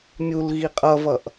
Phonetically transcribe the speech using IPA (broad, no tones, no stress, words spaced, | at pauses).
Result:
mʲul ɣiqʼʌvʌʔ